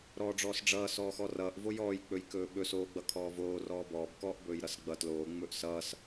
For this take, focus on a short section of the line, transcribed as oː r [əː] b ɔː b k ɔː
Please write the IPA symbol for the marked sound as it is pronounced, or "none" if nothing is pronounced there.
ɔː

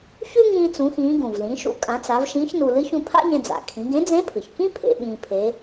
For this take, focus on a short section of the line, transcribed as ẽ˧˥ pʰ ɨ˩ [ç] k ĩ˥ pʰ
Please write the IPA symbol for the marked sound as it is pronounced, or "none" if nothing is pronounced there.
ç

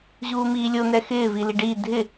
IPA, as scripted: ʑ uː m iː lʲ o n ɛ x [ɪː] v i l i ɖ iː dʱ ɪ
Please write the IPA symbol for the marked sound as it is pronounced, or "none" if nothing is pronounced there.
ɪː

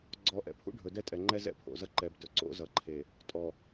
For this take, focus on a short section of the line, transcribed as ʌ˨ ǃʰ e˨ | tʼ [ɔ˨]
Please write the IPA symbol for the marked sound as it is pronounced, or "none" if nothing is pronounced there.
ɔ˨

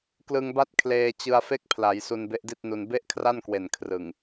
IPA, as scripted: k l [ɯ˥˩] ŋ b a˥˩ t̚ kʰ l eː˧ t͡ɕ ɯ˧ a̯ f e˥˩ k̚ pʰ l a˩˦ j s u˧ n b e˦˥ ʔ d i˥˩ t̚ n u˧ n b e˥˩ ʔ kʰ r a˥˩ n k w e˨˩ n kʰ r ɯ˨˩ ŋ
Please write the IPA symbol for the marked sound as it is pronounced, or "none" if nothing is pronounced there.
ɯ˧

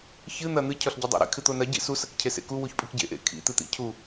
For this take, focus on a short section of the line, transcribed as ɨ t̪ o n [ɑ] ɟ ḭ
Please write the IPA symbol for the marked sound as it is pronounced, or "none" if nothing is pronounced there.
ɐ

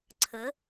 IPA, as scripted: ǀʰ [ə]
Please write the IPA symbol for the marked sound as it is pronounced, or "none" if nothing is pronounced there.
ə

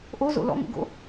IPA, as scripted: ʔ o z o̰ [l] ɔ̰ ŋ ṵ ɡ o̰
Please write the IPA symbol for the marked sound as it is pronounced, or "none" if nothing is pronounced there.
l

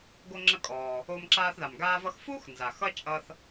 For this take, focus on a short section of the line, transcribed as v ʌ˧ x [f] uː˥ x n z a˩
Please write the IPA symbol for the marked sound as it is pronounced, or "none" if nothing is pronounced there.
f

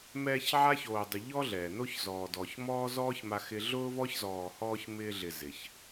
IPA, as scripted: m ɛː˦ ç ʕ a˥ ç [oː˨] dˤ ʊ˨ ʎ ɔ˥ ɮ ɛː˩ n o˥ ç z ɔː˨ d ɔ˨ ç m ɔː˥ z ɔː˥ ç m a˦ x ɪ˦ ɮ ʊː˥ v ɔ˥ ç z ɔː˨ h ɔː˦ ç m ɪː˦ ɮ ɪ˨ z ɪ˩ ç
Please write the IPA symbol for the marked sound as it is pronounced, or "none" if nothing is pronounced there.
oː˨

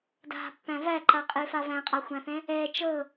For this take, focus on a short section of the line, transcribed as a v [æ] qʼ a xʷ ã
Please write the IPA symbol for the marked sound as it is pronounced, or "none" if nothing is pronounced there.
æ̃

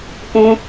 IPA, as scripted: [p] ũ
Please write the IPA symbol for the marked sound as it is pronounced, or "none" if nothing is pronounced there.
p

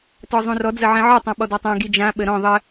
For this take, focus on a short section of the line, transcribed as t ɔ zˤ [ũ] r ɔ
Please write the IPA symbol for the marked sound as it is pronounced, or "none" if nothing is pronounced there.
ũ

